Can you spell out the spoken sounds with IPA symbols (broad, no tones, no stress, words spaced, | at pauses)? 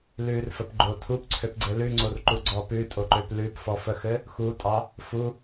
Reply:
lʉrfəpɡ͡ǃo tʰupǀʰøpɡ͡ǀɘ lʉŋ͡ǀorǃuɡ͡ǀɔ pʉtʼoǃøp lʉpfɔfəxɘ | xutʼɑ | fu